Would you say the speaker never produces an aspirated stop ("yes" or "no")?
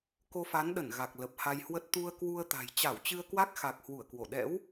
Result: yes